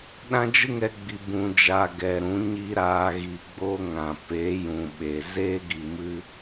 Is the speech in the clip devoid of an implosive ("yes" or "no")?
no